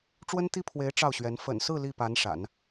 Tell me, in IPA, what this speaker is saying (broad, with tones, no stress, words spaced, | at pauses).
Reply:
ʈ͡ʂwə˥nt̪i˥pʰwe˧˥ɪ̯ ʈ͡ʂɑ˥˩ʊ̯ɕɥɛ˧˥n fə̰˨˩nsɹ̩˥˧ li˥˩pa˧˥n ʂa̰˨˩˦n